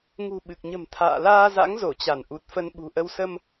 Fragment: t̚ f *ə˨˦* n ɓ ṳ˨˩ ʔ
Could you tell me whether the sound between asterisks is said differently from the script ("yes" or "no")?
yes